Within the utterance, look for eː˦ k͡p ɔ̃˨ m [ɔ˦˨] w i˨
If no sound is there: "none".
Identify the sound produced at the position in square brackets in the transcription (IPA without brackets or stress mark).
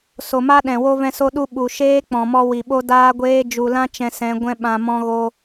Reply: ɔ˧